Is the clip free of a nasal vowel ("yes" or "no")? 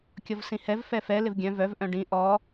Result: no